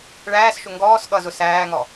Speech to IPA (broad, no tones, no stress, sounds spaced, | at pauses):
ɭ æː s ʃ ʊ ŋ ɡ ɔː s ɠ ʌ z ʊ s æː ŋ ɔ